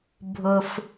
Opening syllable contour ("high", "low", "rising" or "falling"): low